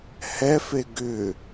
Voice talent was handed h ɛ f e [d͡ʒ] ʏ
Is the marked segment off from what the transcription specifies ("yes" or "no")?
yes